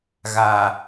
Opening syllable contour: low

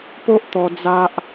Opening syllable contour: high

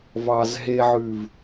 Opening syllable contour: low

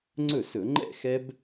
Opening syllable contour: falling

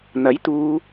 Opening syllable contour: rising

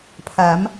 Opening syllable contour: rising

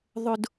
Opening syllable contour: high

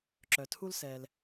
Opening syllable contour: low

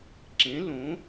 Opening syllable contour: rising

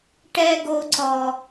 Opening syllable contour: high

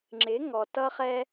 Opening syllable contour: rising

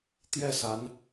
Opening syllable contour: falling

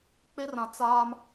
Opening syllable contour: high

